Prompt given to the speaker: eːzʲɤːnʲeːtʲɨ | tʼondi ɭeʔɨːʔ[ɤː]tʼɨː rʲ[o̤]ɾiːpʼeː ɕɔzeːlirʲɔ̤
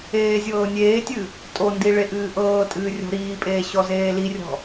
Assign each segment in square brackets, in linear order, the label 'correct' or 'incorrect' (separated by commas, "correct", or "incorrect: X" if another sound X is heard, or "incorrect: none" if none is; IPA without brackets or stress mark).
correct, correct